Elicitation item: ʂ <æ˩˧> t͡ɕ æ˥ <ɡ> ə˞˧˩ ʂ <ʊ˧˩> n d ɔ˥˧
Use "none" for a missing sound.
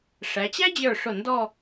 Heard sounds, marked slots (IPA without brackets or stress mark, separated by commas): æ˩˧, d͡ʑ, ʊ˧˩